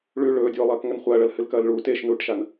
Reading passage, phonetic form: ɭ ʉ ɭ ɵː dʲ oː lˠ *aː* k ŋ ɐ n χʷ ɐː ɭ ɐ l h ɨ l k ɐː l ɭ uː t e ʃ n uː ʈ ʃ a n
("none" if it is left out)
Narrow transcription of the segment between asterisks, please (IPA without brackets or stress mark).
ɐː